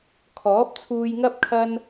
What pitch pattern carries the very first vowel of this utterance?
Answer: rising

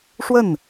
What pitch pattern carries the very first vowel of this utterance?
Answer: falling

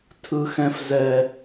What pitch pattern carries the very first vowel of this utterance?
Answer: high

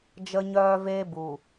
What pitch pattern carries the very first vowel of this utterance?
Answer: high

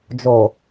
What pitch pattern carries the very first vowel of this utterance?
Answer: low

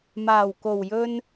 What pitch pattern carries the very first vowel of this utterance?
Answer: low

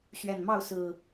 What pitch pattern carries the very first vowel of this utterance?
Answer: low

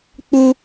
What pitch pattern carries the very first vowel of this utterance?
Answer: high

